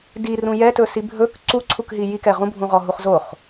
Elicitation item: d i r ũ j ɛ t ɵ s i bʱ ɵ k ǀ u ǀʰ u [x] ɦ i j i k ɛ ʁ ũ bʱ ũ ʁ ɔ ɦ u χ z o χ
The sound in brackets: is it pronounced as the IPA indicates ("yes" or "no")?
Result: no